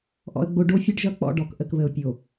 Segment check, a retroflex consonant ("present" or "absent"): present